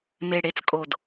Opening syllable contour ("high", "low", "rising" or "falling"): low